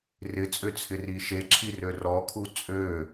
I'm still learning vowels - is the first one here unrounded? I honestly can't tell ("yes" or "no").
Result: yes